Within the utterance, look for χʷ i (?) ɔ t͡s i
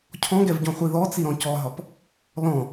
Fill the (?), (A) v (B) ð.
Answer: B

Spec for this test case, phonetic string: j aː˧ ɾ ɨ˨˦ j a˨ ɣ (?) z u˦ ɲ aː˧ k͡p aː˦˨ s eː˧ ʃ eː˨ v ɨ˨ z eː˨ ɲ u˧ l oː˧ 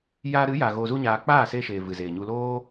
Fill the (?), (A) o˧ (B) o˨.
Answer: A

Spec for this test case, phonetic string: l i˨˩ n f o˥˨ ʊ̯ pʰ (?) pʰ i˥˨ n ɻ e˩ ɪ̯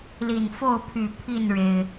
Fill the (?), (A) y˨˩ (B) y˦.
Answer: A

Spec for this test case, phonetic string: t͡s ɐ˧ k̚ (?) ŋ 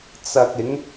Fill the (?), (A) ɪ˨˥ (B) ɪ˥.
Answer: A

